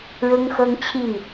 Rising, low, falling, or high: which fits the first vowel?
high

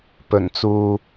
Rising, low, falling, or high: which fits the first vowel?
low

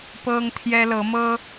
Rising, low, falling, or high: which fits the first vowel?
high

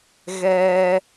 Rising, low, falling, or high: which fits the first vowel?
high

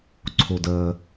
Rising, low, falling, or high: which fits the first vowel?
low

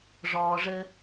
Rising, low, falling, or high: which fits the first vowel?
low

